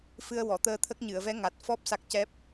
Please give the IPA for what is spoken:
f ɨ˧ ə̯ w ɔ˨˩˨ t̪ əː˧ t̪ʰ ə˦˥ k̚ ɲ ɨ˨˩˨ ə̯ v ɛ˧˥ ŋ a˨˩ t̚ f ɔ˦˥ p̚ s a˦˥ k̚ c ɛ˦˥ p̚

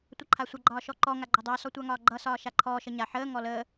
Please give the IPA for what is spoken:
tʷ ʌ ǃʰ a sʷ ʌ ɡ͡ǃ ɒː ʃ ɔ ǃ ɔ ŋ a ɡ͡ǃ ɒ dˤ ʌː s ɔ tʷ a ŋ ɒː ɡ͡ǃ ʌ s ɒː ʃ a ǃʰ ɔː ʃ ə ɲ a ħ əː ŋ ɔ l əː

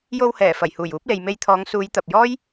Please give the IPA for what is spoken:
j o˧ w h ɛː˨˩ f ɐ˨˩ j h uː˨˩ j uː˨˥ p̚ l e˨ j m e˧ j t̪ʰ ɔː˨˧ ŋ s uː˨˧ j t̪ ɐ˨ p̚ j ɔː˥ j

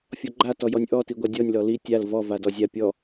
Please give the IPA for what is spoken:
fʲ ɔ ɡ͡ǃ a t ɔ j ɔ nʲ ʔ ɔ t i ɡʷ a dʲ ɔ nʲ l ɔ l i tʲ a l v ɔ v a d ɔ zʲ a pʲ ɔ

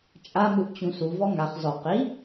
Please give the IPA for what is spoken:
t͡ʃʼ a m ɯ ʔ t͡ɕ ũ s u v ɔ ŋ a χ z ɔ q i

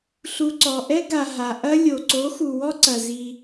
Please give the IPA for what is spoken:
ɬ u˨ ǀ ɔ˨ ʔ ɛ˦ ɡ a˨ ɦ a˨ ʔ ɐ˦ lʲ o˨ ǀ o˨˦ x u˨ w ɔ˦ ǀ ɐ˨ z i˦

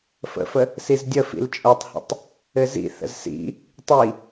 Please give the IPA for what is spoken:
f ə̰ f ə | s i z dʲ ə f ḭ l t͡ʃʼ o tˤ h ə̰ tˤ | ɘ z ḭ θ ə̰ z s ḭ | tˤ i

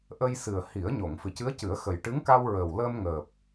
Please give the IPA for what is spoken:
ʔ ə˧ j s ɨ˨˩ ə̯ h i˨˩˦ ə̯ ɲ o˨˩˨ ŋ f ɨ˨˩ c ɨ˧˥ ə̯ c ɨ˨˩˦ ə̯ x ə˨˩ j ʈ ɨ˧˥ ŋ k a˧ w ɹ əː˨˩ w l əː˧ m ŋ əː˨˩ p̚

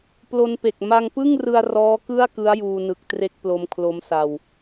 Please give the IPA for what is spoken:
p l o˧ n p e˨˩ k̚ m a˧ ŋ p ɯ˥˩ ŋ r ɯ˧ a̯ r ɔː˦˥ k ɯ˥˩ a̯ k ɯ˦˥ a̯ j uː˧ n ɯ˨˩ k̚ t r e˥˩ k̚ p l o˧ m kʰ l o˦˥ m s a˧ w

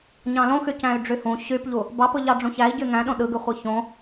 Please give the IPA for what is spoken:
ɲ ɑ̃ l õ x y c æ̃ y̯ ɖ͡ʐ y h ũ ɕ y p ʎ u | b ɑ p ɯ ʎ ɑ ɖ͡ʐ ũ ç æ i̯ ɟ y ŋ æ̃ ɗ õ ɗ ɯ ɡ y χʷ ɯ ç õ

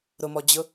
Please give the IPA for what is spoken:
ɾ ʊ m ɔ d͡ʑ ʊ

